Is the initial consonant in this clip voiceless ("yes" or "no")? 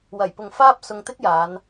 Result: no